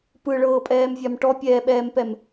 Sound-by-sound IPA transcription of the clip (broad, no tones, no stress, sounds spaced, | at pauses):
p ɯ ɭ ɤː pʼ ɛː m vʲ a m ʈ ɔ pʲ ɛː ɓ ɛː m p ɛ m